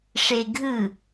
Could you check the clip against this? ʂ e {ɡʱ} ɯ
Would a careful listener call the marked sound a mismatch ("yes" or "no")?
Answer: no